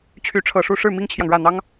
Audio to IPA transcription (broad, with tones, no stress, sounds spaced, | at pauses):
t͡ɕʰ y˧˥ ʈ͡ʂʰ ɤ˨˩ ʂ u˥˧ ʂ ɻ̩˥˩ m i˥ ŋ t͡ɕʰ j ɑ˨ ŋ ɻ ä˥˩ n̪ ɑ˥ ŋ